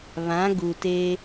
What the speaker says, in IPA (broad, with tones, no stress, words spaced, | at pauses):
βã˨˦ ɡu˨teː˦